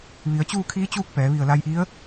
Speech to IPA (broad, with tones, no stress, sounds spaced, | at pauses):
ʋ i˩˧ ə̯ t͡ɕ uː˥˨ kʰ iː˧˥ t͡ɕ uː˥˨ k̚ p ɛː˩˧ ʋ i˧˩ ə̯ l a˧ j ʔ i˧˥ ə̯